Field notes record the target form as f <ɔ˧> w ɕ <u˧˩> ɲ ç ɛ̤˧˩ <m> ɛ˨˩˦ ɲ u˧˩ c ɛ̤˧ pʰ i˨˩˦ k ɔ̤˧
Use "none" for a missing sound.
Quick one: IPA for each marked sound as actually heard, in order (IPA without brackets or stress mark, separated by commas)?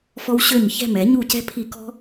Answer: ɔ˧, ø˧˩, m